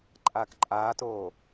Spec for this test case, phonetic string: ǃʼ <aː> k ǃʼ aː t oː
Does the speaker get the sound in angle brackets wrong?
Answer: no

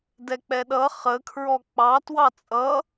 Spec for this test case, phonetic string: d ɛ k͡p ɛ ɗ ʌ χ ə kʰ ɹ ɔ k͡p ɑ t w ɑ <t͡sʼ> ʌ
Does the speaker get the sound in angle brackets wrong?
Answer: no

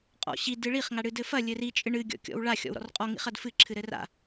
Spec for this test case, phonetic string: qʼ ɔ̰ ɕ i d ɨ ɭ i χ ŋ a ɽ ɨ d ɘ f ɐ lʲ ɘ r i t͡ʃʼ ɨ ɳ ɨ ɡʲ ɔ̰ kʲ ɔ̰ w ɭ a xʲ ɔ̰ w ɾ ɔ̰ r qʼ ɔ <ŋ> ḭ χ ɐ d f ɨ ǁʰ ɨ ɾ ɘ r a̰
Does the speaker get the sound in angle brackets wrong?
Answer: no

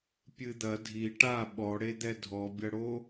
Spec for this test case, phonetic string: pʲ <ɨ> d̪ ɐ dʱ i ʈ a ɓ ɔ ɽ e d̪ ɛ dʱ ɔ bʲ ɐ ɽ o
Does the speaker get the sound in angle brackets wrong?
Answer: no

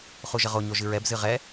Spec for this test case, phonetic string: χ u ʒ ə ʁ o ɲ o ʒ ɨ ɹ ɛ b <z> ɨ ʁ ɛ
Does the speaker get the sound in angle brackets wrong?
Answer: no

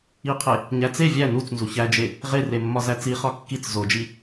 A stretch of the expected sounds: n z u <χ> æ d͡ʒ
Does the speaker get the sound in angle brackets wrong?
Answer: yes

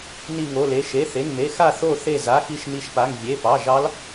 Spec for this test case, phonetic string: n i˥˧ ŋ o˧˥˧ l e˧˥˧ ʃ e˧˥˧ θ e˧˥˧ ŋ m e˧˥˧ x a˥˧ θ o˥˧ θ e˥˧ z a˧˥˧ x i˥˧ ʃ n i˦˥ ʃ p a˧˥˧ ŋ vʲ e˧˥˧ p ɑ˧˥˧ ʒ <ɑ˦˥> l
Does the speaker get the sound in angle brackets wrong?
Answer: no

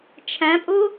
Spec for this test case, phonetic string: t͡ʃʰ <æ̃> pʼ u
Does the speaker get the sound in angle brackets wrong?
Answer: no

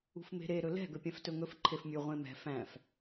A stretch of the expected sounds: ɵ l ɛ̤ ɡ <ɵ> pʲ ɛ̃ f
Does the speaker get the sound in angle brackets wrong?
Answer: no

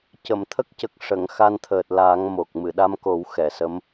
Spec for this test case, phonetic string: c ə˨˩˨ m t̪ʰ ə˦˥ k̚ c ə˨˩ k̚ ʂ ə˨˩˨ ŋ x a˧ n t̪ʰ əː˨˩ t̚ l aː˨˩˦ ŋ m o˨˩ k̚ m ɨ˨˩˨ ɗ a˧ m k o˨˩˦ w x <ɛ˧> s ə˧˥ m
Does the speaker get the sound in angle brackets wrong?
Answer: yes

